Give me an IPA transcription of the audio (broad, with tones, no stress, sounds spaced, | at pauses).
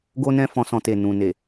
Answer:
ɡ o˦ n ɛ̃˦ f ɔ̃˧ s ɔ̃˧ t e˨ n ũ˨ n e˨